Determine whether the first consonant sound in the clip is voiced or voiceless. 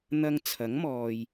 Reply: voiced